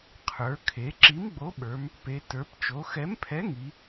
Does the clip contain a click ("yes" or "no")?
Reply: yes